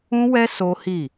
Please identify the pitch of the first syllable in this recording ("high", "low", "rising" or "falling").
high